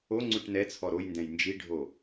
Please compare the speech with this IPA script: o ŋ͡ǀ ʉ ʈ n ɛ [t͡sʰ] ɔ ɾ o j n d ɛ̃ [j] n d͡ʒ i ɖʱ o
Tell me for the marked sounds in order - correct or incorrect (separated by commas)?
correct, correct